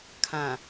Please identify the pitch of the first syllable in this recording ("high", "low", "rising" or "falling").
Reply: low